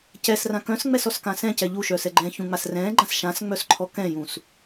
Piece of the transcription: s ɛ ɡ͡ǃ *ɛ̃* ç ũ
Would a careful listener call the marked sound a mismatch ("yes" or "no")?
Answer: yes